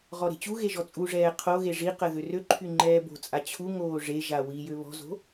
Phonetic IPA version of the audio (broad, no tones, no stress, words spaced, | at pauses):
ʁɔɾe̤t͡ɕuɣe ʒɔt͡sʼuʐɛː qʰoɣe ʐiqə ðørøǃʰy ŋ͡ǃɛːbo̤t͡sʼa t͡ɕʰu ŋoːʐeʒa wijø βɔ̤zo̤